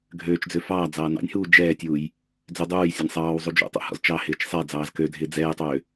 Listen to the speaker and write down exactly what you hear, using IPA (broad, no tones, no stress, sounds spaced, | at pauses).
ɡʱ øː t͡ʃ d͡z ø f ɑː d͡z ɑː n ɑ̰ nʲ h uː d͡ʒ ɛː tʲ uː j | d͡z ø dˤ uː j sʲ ɑ nʲ sˤ ɑː w zˤ u d͡ʒ ṵ tˤ ṵ h ɔ̰ z t͡ʃ ɑ h ɪː t͡ʃ sˤ ɛ d͡z ɑː z k ø dʱ ɪː d͡z ɛː j tˤ øː